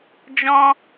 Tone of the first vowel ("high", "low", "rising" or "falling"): high